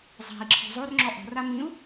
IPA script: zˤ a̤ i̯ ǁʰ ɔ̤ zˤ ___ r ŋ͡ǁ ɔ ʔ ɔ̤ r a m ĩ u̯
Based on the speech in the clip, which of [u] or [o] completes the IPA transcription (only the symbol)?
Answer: o